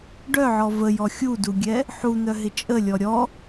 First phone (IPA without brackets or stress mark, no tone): ɖ